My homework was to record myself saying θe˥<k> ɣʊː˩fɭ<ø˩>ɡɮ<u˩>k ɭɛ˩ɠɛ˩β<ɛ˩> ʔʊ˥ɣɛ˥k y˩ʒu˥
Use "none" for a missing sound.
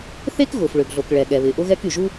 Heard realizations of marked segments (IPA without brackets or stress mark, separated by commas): k, ø˩, o˩, ɪ˩